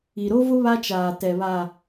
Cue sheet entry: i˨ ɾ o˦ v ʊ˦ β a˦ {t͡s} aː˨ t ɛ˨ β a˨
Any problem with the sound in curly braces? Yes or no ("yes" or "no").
yes